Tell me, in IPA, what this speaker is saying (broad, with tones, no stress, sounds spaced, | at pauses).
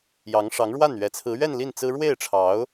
j ɑ˧˥ ŋ ʂ ɑ˧˥ ŋ ɻ w a˥˩ n ɥ ɛ˨˩ t͡sʰ ɹ̩˧˥ ɥ ɛ˥˧ n l i˥˩ n t͡s ɹ̩˥ ɻ w e˥˩ ɪ̯ ʈ͡ʂʰ ɑ˧˥ ʊ̯